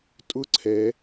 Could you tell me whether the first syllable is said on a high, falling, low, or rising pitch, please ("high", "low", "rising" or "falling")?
high